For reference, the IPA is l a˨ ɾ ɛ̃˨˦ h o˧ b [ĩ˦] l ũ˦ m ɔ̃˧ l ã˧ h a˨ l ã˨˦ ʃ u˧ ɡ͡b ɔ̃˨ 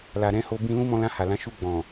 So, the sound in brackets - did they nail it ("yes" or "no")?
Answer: no